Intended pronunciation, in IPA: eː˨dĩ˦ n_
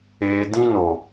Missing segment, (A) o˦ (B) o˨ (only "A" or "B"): B